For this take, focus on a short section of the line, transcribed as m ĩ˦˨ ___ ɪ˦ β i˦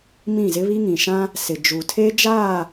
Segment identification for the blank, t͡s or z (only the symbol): z